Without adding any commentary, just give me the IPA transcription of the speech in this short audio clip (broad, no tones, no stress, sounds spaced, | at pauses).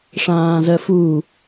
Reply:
ʂ ãː z ɜ f u